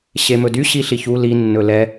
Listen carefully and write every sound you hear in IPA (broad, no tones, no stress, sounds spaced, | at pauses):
ɕ e m ɵ d y ɕ i ɬ i ç u l i nː ɵ l ɛ